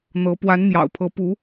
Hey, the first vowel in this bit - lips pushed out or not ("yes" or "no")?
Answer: no